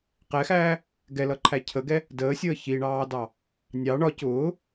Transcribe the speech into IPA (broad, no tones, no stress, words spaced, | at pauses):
qɛxæː | ɡɛlʌǃʰæ cʰəɡɛ | dəːsʲəː çiɳɑːdɑ | nʲɑ ɳɒ cʊː